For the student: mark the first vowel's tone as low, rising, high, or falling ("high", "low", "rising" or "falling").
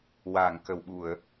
low